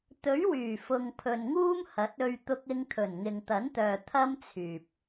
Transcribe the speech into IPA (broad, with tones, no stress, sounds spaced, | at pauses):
t̪ ɵ˨˥ ɥ w yː˨˩ f ʊ˨ ŋ pʰ ɵ˨ n ŋ uː˥ m h ɐ˨˥ t̚ ɵ˧ ɥ t̪ ʊ˧ k̚ ɪ˧ ŋ t̪ʰ ɵ˨˩ n ŋ ɪ˨ ŋ t̪ ɐ˨˥ n t̪ œː˨ t̪ʰ ɐ˥ m t͡sʰ yː˨ p̚